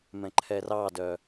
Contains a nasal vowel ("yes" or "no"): yes